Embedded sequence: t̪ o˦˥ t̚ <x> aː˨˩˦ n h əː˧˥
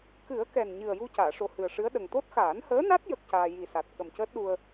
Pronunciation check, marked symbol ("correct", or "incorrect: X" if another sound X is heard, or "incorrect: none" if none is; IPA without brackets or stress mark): correct